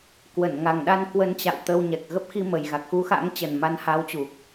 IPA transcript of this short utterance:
k w ə˧˩ n ŋ a˨˩ ŋ ɗ a˧ n k w ə˧ n t͡ɕ a̰˧˨ w t̪ ə˧ w ɲ ɛ˨˩ k̚ ɣ ə˦˥ p̚ x i˧ m ə˨˩ j ɣ a˨˩ k̚ x u˨˦ x a̰˧˥ ŋ t͡ɕ ə˨˩ n m a˨˦ n h a˨˦ w t͡ɕ u˨˩ k̚

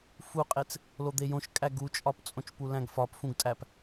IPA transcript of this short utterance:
f u qʼ e t͡s | l o d̪ e j õ ʃ kʼ æ ɡ u t͡ʃʼ ɒ p t͡sʼ õ t͡ʃ p u l æ̃ ɡ f ɒ p f ũ ɡ tʼ æ p

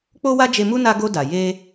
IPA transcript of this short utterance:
k͡p o˦ w a˦ d͡ʒ e˧ m u˦ n a˧ ɡ o˧ d a˨ j e˧

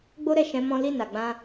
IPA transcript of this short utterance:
ɡ͡b o˦ ɾ ɛ˦˨ ʃ ɛ̃˨˦ m ɔ̃˦ l i˦˨ n a˨ ɡ͡b ã˧

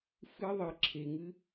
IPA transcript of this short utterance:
f ɨ˦˥ ðˤ ɨ˩ ǁʰ e˩ ŋ ɨ˦˥

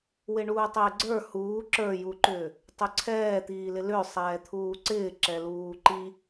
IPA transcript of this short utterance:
w ɪ ɳ uː tˤ ɪː ɡ͡ǀ ə˞ h uː ǁ ə˞ j u ǃ ʏː | tˤ ʏ ǀʰ ɛː t̪ iː l ɪ l ʏː sˤ ɛː t̪ʰ uː ǀ ɪː ǁ ɛ l uː ǃ i

